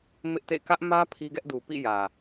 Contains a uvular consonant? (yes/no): no